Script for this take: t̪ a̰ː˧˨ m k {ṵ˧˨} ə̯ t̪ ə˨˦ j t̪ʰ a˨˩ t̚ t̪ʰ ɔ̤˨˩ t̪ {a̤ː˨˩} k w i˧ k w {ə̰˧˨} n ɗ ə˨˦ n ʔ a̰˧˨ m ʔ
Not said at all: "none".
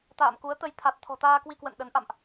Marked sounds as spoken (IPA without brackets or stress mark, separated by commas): u˨˦, aː˧, ə̰˧˨